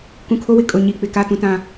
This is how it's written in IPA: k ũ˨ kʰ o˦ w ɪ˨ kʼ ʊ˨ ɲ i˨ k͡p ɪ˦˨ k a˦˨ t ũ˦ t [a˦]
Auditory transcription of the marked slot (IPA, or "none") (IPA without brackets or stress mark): ã˦